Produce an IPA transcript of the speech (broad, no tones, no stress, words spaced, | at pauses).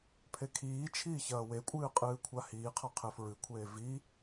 pʰekʰiːt͡ʃʰiː çɐːwekʷʼɨː qʼɨːkʷʰahiːqʰa qʰefɹɨkʷʰeː vi